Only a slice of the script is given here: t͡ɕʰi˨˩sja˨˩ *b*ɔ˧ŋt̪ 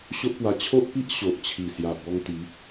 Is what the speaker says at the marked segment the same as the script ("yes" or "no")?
yes